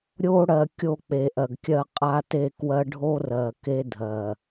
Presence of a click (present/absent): absent